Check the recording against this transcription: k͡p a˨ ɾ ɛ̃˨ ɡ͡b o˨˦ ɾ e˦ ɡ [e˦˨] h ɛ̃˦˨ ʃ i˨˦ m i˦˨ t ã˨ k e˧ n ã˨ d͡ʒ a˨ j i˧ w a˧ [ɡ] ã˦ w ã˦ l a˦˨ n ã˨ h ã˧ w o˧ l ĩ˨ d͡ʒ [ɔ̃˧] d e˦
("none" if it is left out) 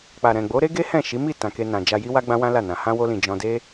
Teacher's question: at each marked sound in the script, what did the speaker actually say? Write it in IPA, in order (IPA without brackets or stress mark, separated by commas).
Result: e˦, ɡ͡b, ɔ̃˧